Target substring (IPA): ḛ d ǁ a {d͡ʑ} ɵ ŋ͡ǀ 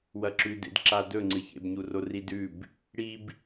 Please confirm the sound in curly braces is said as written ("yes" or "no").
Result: no